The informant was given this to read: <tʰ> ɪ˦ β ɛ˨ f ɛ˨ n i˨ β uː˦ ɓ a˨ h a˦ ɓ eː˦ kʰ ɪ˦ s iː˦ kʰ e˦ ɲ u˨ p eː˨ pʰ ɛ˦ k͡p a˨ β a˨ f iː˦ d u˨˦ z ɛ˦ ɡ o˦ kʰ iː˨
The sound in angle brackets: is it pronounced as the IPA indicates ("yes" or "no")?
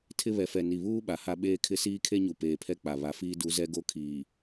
yes